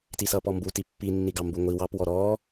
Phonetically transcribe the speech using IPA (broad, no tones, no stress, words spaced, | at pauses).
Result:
tisʌːpɔmbu tipːinːiɡɑ mbuŋʷi wɑpwɔ ɾɔː